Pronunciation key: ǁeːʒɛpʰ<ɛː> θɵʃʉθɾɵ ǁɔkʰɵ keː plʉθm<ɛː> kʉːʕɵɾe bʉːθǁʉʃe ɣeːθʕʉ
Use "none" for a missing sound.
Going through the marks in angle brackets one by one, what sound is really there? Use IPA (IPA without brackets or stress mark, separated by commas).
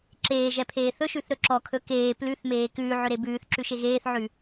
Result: eː, eː